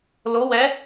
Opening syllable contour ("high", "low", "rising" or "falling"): rising